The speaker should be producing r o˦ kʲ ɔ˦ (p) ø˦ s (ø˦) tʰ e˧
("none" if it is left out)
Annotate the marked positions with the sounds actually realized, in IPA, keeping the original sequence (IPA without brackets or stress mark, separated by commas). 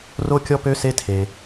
p, e˦